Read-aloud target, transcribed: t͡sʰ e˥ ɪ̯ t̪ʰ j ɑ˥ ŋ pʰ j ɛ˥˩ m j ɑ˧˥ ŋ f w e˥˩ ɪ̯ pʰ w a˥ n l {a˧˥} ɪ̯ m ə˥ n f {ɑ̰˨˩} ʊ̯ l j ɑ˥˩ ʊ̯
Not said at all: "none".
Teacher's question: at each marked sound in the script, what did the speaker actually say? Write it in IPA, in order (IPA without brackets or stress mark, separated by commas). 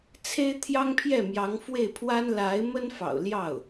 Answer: a˧˥, ɑ̰˨˩